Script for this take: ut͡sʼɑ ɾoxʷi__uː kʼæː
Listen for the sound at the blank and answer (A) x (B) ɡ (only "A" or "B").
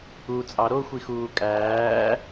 A